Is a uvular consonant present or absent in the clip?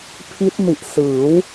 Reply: absent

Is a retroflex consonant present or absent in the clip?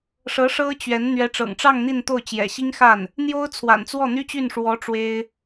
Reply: present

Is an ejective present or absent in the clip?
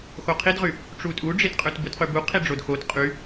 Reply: present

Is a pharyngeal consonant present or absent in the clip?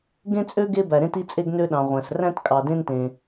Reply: absent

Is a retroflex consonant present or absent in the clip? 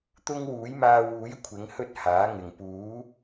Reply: absent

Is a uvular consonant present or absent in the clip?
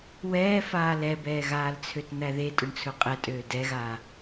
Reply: present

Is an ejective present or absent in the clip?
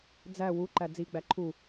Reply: absent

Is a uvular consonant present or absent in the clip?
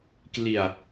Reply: absent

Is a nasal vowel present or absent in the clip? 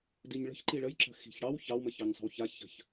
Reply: absent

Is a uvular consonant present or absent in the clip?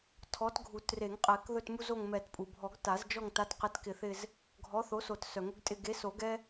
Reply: present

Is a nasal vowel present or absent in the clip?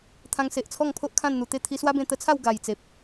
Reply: present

